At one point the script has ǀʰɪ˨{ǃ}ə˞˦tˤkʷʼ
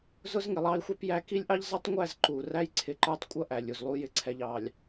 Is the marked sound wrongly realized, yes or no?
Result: no